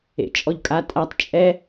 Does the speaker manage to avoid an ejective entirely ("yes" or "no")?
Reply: no